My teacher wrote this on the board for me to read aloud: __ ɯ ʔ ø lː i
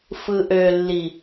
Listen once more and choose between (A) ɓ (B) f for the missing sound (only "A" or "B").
B